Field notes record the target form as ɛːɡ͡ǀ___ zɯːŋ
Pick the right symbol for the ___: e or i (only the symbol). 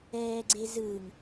e